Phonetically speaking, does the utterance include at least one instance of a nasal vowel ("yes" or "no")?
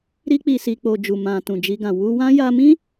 yes